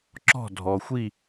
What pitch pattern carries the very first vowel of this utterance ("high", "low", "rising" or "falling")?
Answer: falling